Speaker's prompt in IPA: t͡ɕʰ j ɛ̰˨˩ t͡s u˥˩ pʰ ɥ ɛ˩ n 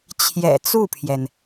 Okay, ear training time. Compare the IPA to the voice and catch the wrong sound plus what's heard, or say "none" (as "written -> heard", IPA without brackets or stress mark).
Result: ɥ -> j